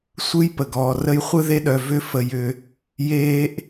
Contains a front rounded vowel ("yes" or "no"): yes